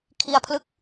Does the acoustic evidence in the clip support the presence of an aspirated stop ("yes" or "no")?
yes